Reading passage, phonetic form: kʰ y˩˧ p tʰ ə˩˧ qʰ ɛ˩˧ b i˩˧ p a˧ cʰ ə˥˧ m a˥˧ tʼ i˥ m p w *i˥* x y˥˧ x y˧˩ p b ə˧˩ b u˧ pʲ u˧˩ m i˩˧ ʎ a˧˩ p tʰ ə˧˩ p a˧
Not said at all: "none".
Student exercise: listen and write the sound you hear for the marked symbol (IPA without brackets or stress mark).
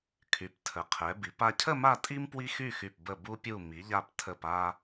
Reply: i˥